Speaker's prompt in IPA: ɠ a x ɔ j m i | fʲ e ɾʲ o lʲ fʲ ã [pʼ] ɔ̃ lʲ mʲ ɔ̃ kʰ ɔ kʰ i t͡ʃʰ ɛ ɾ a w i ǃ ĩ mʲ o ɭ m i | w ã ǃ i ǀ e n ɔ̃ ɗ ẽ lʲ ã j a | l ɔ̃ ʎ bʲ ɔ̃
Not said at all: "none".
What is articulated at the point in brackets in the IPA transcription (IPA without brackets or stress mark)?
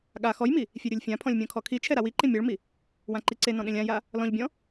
pʰ